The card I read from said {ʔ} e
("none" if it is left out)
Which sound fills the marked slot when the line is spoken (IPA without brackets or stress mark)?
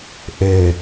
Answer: ʔ